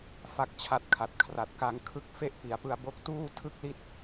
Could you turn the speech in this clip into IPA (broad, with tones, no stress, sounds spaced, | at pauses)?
f a˥˩ k̚ t͡ɕʰ a˦˥ t̚ kʰ a˨˩ t̚ kʰ r a˨˩ t̚ k a˧ ŋ kʰ ɯ˦˥ k̚ f e˥˩ ʔ p i˩˦ a̯ p ɯ˧ a̯ b o˦˥ k̚ t uː˥˩ tʰ ɯ˥˩ k̚ l i˥˩ t̚